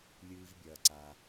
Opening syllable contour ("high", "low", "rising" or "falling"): high